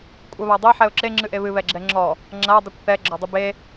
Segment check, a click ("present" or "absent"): present